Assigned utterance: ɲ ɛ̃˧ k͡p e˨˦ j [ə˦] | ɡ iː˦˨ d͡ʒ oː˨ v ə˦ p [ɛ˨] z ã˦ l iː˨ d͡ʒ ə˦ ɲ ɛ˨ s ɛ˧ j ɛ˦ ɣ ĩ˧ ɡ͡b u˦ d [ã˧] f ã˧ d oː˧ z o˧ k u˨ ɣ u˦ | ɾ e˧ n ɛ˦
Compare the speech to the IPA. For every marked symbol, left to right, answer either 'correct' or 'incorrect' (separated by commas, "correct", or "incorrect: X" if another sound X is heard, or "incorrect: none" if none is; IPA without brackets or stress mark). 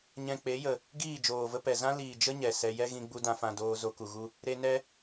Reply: incorrect: ə˨, correct, correct